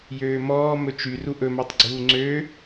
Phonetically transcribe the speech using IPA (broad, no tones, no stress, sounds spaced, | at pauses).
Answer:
j øː m ɔː m ɵ t͡ʃ y r u ʔ ɵ m æ tˤ ɡ͡ǀ uː ŋ͡ǀ ø